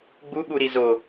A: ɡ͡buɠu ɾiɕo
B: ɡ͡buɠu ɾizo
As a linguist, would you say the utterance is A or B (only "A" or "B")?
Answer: B